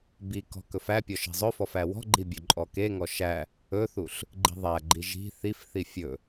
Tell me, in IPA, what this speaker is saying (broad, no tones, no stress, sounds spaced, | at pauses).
b i k ɔ̤ k ɵ f æ pʲ ɔ ʃ i̤ zˤ ɵ f ɔ f æ w ɔ̤ ɡ͡ǃ i bʲ ɵ ǃʼ ɔ k e ŋ ɔ ʃ æ | ɵ θ u ɬ | ɡ͡ǃ i̤ ðˤ æ ɡ͡ǃ i ʒ i̤ θ i f θ i fʲ ɵ